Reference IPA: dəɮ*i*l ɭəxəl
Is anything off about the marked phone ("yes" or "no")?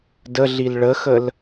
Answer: no